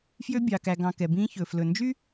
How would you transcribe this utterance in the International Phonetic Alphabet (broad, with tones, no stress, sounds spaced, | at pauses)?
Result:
f j ø˦ bʲ ɑ˨ k æ˨ ɡ ɑ̃˨ k ɛ˨ b ĩː˦ ç ɵ˨ f l ɵ˨ n d͡ʒ y˥